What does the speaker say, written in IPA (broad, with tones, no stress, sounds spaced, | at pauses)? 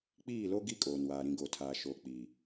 k͡p iː˦˨ l o˦ ɡ i˦ kʼ oː˨ n w aː˨ ɾ ĩ˨ ɡ o˨ tʰ aː˨ ʃ oː˨ k͡p iː˨